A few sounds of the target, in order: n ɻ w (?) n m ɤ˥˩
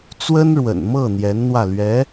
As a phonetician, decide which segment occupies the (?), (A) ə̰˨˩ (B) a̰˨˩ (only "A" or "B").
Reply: A